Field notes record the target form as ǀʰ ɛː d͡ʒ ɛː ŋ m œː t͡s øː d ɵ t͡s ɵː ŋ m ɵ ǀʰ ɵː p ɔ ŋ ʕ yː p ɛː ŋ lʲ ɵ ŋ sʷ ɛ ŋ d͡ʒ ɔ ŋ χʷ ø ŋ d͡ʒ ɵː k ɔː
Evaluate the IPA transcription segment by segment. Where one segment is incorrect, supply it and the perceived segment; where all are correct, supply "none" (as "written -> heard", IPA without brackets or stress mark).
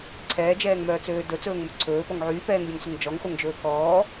ø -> œ